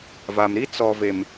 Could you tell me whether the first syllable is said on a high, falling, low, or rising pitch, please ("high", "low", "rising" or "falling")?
low